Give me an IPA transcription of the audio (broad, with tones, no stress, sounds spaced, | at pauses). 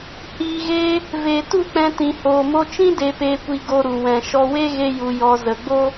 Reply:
h iː˨ ɣ eː˧ | v eː˨ t u˦˨ k͡p ɛ̃˧ t ĩ˨ h oː˨ m o˧ t͡ʃ ĩ˦ d e˧ p eː˧ kʷ i˧ ɡ o˧ ɾ u˨ w ɛ̃˨ ʃ ɔ˧ w e˦ ɣ e˦ j u˧ j ɔ˧ z ə˨ ɡ͡b o˦